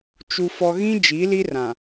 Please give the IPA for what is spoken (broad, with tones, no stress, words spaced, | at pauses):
t͡ʃu˨ fɔ˨ɣĩ˦ d͡ʒi˨˦li˦rã˨